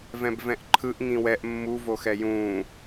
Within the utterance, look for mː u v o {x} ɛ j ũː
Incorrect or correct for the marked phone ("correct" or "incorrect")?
correct